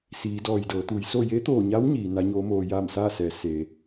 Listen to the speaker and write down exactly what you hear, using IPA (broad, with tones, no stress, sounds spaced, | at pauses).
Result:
s iː˩˧ d ɔː˧˩ j d ɤː˩˧ t̪ uː˩˧ j s o˥˨ j e˧˥ t̪ oː˧˩ ɲ a˧˥ w ɲ iː˩˧ n a˧˥ ɲ oː˧˥ m oː˧ j aː˥˨ m s aː˥˨ s ɛː˩˧ s e˩˧